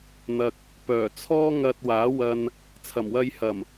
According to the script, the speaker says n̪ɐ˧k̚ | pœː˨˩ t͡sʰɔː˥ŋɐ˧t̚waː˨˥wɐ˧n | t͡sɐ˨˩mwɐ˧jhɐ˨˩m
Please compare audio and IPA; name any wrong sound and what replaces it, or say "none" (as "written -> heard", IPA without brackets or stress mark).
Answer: t͡s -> t͡sʰ